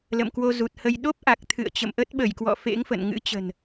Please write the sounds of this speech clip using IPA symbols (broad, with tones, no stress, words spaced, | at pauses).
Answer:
lə̰˧˨mkwo˧zu˨˩t̚hə˧j ɗo˦˥p̚ʔa˨˩k̚ t̪ʰɨ̰˧˨ə̯ t͡ɕə̰˧˨mʔə˦˥t̚ɓə˧˩jkwɔ̰˧˨ fḛ˧˥ŋfə̰˧˨nŋɨ̰˧˥t͡ɕə̤˨˩n